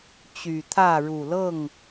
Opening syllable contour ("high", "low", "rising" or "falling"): low